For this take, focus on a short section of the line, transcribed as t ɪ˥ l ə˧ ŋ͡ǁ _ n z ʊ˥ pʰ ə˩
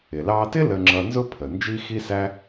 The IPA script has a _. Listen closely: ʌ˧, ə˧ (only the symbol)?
ʌ˧